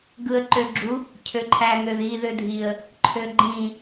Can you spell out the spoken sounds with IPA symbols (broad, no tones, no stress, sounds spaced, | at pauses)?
ɡ ɯ ə̯ ǃ ø ɡ͡ǁ u | cʰ ø ǃʰ æ ŋ ø ð i ð ø dʱ i ə̯ | ǃʰ ø ɡ͡ǃ ĩ